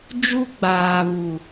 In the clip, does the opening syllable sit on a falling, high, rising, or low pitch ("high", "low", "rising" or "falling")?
high